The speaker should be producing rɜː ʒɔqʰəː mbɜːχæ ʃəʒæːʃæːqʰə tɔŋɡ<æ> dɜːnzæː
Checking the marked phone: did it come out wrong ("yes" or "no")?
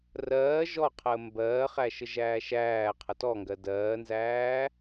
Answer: yes